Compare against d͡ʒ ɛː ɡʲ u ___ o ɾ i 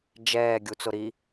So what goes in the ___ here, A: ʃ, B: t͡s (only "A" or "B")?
B